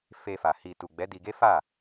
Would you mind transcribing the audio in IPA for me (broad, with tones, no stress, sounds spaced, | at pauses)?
f e˧ f a˨ h i˨ t u˨ ɡ͡b ɛ˨˦ d i˧ ɡ e˦ f a˦˨